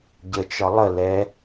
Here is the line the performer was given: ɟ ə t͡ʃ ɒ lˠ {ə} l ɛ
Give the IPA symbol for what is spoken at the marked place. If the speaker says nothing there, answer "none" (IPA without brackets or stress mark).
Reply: ə